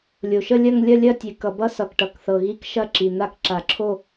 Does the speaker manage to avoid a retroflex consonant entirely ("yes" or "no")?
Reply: no